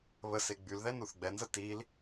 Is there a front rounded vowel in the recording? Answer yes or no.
yes